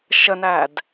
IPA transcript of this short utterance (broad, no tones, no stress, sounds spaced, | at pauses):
ʃ ə n æ d